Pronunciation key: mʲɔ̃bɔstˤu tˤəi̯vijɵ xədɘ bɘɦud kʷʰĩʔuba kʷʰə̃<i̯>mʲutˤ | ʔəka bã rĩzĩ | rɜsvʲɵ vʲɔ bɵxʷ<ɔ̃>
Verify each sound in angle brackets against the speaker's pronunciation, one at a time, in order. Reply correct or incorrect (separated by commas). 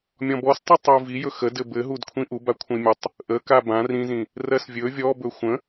correct, incorrect